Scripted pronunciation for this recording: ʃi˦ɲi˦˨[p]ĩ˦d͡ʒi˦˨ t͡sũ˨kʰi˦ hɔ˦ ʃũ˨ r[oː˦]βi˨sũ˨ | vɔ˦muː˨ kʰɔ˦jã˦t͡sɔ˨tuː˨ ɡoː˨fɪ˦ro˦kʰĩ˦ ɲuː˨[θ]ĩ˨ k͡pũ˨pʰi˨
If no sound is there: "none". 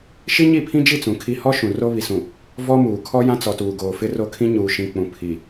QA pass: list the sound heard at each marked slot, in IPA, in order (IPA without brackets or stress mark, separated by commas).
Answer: pʰ, o˦, ʃ